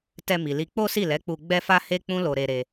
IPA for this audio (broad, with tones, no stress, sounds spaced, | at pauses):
t ɛ˧ m i˨ l i˧ k͡p o˦ s i˦˨ l ɛ˨˦ k͡p u˧ ɡ͡b ɛ˦ f a˦ h e˦ k͡p ũ˦ l o˧ ɾ e˧ ɾ e˧